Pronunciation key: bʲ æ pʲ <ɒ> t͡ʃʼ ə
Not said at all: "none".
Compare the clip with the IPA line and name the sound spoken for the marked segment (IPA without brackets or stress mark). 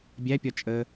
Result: ɒ